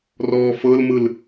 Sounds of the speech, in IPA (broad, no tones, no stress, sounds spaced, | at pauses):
r ɔː f ɤ l m ɯ l